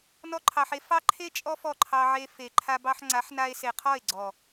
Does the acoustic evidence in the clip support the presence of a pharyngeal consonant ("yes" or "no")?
yes